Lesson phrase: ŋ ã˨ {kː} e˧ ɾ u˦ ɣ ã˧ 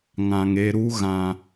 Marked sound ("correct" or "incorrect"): incorrect